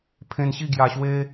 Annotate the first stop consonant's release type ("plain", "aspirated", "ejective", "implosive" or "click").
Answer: aspirated